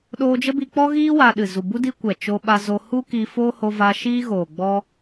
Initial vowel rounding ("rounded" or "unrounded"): rounded